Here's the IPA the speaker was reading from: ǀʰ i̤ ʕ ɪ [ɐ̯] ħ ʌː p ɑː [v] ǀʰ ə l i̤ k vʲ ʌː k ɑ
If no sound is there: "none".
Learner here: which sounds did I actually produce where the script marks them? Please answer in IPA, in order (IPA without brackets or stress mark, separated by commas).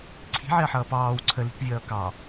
ɐ̯, w